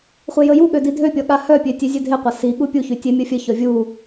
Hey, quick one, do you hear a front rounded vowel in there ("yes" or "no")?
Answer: yes